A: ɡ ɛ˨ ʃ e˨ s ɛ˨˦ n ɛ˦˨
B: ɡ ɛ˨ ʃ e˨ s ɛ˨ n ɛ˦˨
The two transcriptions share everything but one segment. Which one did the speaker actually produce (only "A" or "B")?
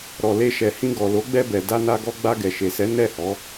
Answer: A